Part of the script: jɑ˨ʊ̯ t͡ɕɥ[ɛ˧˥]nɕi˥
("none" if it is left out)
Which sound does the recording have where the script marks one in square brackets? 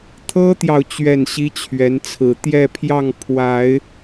ɛ˥˩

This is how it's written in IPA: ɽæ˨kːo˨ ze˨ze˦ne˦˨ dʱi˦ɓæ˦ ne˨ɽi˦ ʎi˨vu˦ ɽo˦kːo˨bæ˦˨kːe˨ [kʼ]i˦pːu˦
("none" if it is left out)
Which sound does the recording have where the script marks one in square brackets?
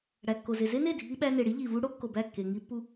ŋ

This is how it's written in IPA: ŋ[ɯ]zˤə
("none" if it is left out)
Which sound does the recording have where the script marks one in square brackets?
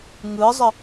ɯ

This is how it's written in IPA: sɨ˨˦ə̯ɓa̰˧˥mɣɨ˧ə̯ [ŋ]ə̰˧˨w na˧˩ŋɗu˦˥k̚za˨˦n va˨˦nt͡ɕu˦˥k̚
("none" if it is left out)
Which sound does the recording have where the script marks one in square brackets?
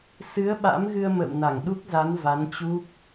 m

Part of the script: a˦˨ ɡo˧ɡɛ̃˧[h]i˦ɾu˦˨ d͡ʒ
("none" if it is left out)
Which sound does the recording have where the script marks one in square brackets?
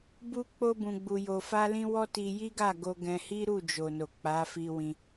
h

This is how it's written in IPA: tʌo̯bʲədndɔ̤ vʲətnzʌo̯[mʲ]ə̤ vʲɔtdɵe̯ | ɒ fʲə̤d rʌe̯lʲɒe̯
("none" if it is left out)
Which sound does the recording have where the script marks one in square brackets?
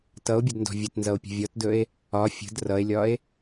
pʲ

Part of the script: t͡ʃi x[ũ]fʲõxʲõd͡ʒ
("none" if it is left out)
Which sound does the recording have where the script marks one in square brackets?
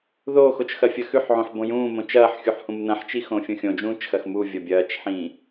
õ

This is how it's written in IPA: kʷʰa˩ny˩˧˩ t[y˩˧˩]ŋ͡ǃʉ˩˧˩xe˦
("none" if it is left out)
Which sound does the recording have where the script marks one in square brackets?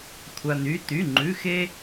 y˩˧˩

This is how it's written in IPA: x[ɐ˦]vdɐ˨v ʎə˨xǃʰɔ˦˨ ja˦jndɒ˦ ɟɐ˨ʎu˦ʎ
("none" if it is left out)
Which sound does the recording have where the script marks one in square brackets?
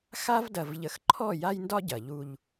a˦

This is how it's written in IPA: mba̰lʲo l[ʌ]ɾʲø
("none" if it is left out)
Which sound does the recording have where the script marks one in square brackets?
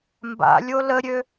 ə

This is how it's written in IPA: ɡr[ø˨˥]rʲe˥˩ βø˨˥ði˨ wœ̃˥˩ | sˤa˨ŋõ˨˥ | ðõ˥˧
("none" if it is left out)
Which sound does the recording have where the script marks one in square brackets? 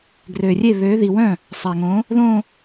ø˨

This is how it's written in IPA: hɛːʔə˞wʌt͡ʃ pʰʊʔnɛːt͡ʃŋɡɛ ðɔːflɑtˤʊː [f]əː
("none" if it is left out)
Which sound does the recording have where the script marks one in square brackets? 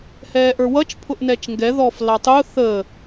θ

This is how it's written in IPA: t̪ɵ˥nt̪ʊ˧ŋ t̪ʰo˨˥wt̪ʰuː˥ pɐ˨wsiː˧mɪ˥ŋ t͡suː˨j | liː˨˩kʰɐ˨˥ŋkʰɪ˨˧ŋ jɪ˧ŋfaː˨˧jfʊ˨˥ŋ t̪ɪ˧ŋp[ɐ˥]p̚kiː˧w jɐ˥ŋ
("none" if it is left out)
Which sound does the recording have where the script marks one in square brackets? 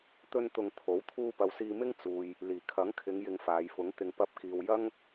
ɐ˥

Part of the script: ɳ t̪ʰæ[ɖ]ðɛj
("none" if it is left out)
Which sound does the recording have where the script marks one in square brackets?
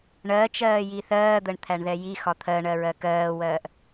ɳ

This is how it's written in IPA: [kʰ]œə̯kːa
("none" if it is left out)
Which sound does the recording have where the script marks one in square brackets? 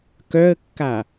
k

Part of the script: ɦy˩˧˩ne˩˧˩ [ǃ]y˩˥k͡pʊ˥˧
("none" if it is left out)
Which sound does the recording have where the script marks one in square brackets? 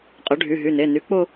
n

